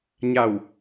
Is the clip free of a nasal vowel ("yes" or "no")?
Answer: yes